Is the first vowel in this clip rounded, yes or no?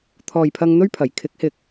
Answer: yes